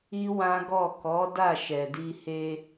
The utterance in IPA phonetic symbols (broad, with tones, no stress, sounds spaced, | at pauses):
i˦ w ã˦ ɡ ɔ˦˨ k ɔ˨˦ d a˦˨ ʃ ɛ˨ d i˧ h e˧